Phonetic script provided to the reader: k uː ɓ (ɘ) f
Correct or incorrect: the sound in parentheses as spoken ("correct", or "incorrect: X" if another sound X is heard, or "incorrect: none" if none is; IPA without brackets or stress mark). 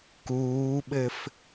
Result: correct